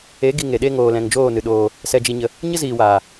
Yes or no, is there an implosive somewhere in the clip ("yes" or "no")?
yes